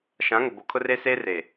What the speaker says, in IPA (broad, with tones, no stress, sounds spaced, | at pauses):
ʃ ã˨˦ ŋ ʊ˨ b o˨ kʰ ʊ˦ r e˦ s eː˦ r eː˨